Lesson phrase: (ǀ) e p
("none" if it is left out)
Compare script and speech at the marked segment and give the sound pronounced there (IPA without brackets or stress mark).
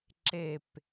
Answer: ǁ